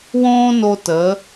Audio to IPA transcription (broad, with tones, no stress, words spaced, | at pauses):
wõː˥no˧ tə˩˧